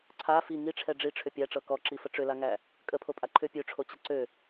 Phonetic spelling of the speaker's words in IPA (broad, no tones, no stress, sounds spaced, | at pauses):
ǀʰ a f i ŋ i ʈ͡ʂʰ ɛ ɖ͡ʐ i ʈ͡ʂʰ ʏ pʲ æ ʈ͡ʂ ɤ k ɔ ǁ i f ə ʈ͡ʂ ʏ l a ŋ æ | kʼ ə pʰ o pʼ a ǃʰ ʏ pʲ ø ʈ͡ʂʰ o t͡ɕ ə ǀ ø